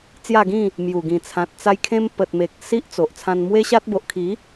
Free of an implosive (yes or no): yes